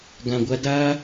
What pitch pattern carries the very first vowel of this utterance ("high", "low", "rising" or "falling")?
low